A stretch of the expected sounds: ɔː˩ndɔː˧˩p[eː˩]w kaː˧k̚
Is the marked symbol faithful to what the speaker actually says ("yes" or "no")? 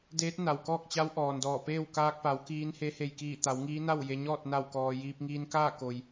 no